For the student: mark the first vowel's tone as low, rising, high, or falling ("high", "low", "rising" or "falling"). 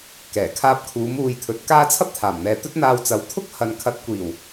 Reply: low